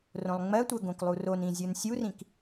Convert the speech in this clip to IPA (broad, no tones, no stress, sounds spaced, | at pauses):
r õ lˠ ŋ͡m ɜ tʷ ɜ ɡ õ k lˠ u r o n ĩ zʲ ɯ n sʲ u r ĩ k